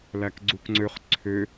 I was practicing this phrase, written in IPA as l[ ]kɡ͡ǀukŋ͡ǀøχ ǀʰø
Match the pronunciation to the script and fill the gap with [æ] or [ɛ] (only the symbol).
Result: æ